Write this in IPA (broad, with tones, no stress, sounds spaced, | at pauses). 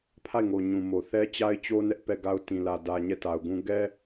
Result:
pʰ a˦˨ ɪ̯ ŋ o˨ ɲ ũ˨ m o˨ θ ɛ˦ t͡ɕ a˦ ɪ̯ t͡ɕ o˦ n ɛ˦ ʔ p ɛ˦˨ ɡ a˦ ʊ̯ t ĩ˨ l ä˨ d ä˨ ɲ ɛ˦˨ t a˨ ʊ̯ ɡ ũ˦ ɡ ɛ˦